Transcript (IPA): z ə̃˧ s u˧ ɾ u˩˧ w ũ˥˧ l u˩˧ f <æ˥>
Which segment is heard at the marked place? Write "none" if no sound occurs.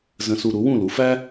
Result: æ˥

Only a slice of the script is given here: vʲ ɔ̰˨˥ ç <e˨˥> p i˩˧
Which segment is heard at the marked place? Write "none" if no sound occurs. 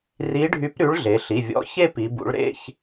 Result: e˥˧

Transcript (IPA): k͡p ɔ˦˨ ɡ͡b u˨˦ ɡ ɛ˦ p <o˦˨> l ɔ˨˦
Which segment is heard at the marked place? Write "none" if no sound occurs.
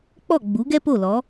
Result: o˦˨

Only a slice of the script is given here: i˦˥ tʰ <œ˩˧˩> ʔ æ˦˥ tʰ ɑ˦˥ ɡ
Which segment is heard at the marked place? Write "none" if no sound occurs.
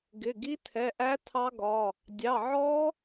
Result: ɛ˩˧˩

